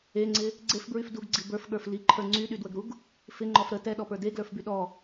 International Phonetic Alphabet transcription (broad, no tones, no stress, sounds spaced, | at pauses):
e ŋ͡ǀ ɪ | ɡ͡ǀ e f b ɹ y f d u ɡ ɡ͡ǀ i b ə˞ f ɠ ə˞ f l i ǃʰ ə˞ ŋ͡ǀ y ɗ y d w ə ɡ ɾ u ɡ | f ɪ ŋ͡ǃ ɔ f ɾ ə t ɛ ɗ ɔ p ə˞ d e ɡ l ə˞ f b y ɗ ɔ